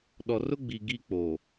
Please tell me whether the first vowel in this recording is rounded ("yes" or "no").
yes